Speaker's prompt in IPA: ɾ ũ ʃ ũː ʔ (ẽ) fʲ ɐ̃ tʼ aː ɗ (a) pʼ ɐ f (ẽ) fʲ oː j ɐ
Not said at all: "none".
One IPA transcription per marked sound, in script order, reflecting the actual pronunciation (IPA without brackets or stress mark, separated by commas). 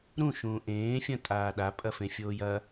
ẽː, a, ẽ